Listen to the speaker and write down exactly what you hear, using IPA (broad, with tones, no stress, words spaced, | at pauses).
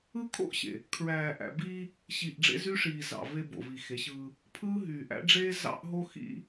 ɯ˦kʰo̰˦ʔɕḛ˨ | kʰɹæː˨ʔæ̰˨biː˦ | ɕi˨ʔ ɖ͡ʐḛ˦zy˦ʂiː˨ zɑ̰˨ve˦ bo̰˨vi˨xe˨˦ɕɯː˦ | pʰɯː˦ɦyː˨ʔ æ̰˦ɖ͡ʐeː˦ zɑ̰˦ʔ ɦo˦xḭ˦